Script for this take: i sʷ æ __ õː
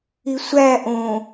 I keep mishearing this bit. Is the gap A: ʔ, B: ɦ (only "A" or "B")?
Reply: A